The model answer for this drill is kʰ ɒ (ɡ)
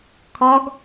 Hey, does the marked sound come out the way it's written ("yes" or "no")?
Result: yes